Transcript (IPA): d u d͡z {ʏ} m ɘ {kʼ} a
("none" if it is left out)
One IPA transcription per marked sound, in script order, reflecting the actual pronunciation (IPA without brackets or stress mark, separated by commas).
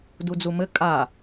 u, kʼ